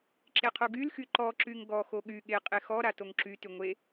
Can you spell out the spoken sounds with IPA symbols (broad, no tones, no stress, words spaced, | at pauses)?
ǁeqʰoɡylxy ǃɔǁyŋ ɡɔxo ɠy ɠe qʼexɔɾa toŋǁyty ŋʷe